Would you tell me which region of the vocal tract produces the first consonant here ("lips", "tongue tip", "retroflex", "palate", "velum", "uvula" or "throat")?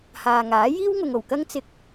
throat